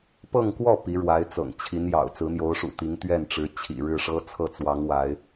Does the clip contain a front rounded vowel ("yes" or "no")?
no